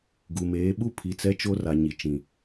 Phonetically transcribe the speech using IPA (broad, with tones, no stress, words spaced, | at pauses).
ɡu˨meː˨˦ ɓu˦ pʰi˨t͡sɛ˦t͡ʃo˦ra˨ ɲi˨t͡ʃĩ˨